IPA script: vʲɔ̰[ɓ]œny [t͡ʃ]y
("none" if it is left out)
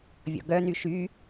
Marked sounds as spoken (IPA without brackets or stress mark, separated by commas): ɡ, ʃ